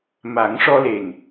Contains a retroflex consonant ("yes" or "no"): yes